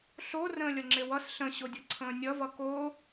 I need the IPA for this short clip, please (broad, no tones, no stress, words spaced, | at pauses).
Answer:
ɬo rə̃ːlʲʌŋ͡ǁewʌs ɬə̃ɕodʲʌ ǀʰə̃ːnʲʌvʌ ko